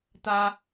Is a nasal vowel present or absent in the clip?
absent